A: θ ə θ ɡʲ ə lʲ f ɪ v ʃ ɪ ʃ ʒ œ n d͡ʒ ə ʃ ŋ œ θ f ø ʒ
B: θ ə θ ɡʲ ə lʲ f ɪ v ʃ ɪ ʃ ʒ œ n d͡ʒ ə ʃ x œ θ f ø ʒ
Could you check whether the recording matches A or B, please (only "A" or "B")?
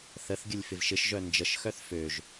B